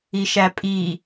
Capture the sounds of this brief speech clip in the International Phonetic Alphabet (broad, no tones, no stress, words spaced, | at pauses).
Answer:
iʃæpʼi